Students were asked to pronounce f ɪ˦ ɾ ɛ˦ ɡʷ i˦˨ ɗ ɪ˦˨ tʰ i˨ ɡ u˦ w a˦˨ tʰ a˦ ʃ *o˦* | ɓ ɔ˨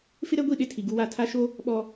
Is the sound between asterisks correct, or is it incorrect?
correct